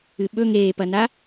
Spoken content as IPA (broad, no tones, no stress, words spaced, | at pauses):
ɨɓɵ ŋeːpɐna